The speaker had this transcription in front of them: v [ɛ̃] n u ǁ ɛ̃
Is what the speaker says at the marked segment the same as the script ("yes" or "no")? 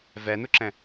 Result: no